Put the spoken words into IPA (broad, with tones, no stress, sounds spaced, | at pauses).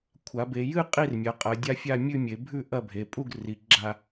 kʷʰ a˩˧ b e˩˧ j ɨ˥˧ qʼ i˥˧ r mʲ ɐ˩˧ qʼ ɐ˩˧ dʲ a˥˧ fʲ a˥˧ mʲ ʉ˥˧ mʲ e˩˧ bʱ ʉ˥˧ ʔ ɐ˥˧ bʱ e˩˧ pʼ u˥˧ ɡ r i˩˧ ɡ͡ǁ a˥˧